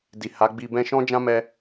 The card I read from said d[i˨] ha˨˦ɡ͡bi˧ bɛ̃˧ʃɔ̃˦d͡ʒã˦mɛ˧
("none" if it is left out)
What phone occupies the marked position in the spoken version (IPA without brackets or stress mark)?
i˨